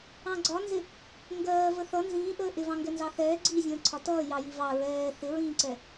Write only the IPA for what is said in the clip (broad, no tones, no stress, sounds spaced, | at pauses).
ɑ̃ ɡ͡ǀ ɒ n z ɪ | ŋ ɡ ɜː v ə θ ʌ n z ĩː ʔ əː ʔ ɪ v ɑ̃ ŋ ɡ ɛ n z ɑ θ ɛː ɡ͡ǀ i zʲ ə̃ː ǀʰ ɒ t ʌː j ɑ j i v ɑ ɹ ɛː θ ɪ ɹ ĩː ǀ ɛ